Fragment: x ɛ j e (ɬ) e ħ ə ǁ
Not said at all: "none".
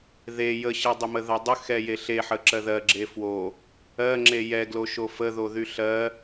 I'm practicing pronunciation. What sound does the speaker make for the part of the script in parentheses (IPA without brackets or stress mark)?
ɬ